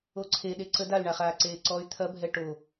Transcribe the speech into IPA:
o ǀʰ e ɗ e ǀ ə d a y̯ ɳ a χ aː ǀ eː ǀ ɔ y̯ t̪ʰ ɐ bʱ ɛ ʈ o

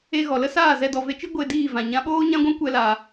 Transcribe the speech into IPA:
e˧ ɣ ɔ˨ l ə˦ s aː˦˨ z ɛ˧ d ɔ˨ v e˧ t͡ʃ i˦ ɡʷ e˧ d iː˦˨ v ã˨ ɲ ã˨˦ ɓ oː˦ ɲ ã˦ ɡʷ ɛ̃˦ kʷ ɛ˧ l aː˧

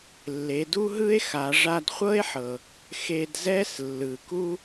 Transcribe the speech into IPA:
lː e˩˧ d u˥ ɦ ɯ˥ e̯ x a˩˧ ʐ a˧ d χʷ ɤ˥ e̯ ħ ɤ˩ | x e˧ d z ɛ˥ s lː ɯ˩ k u˥

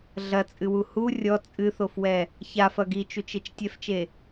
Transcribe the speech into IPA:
ɮ ɐ t͡sʼ ɨ w u h u rʲ ɔ t͡sʼ ɨ θ o f w ɛ | ç a f ɐ ɡ i t͡ʃ u t͡ʃ e t͡ʃ tʲ ɛ f t͡ʃ e

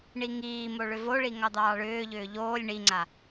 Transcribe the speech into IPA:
ɳ i ŋ iː m o ɭ ʏ v o ɭ i ŋ ɑ d̪ ɑː ɭ ʏː ʎ ʏː ʎ oː lʲ ɳ i ŋ͡ǀ a

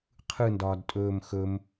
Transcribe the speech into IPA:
qʰ ɯ n d ɒː d tʼ ɵː m x ɵ m

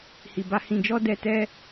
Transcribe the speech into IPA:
h i˧ b a˦ h ĩ˧ d͡ʒ ɔ˦ d ɛ˧ t ɛ˦

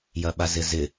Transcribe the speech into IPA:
j ɐ ɓ a z ɪ z ɪ

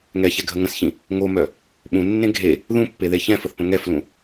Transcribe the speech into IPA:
ŋ ɛ ç ɛ ɡʱ ə ŋ ə̃ s ç ĩ | ŋ o m œ | ɓ ũ nː ẽ ɡʱ e | ð ũ pː e ð e ç ɛ̃ f ə θ p ə̃ ŋ ɛ f l ũ

